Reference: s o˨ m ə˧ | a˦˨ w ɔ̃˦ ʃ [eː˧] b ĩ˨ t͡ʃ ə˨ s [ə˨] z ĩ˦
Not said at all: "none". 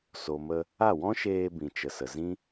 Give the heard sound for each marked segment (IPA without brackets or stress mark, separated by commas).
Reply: eː˧, ə˨